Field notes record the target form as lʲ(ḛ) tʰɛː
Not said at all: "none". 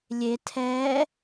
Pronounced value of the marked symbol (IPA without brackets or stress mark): e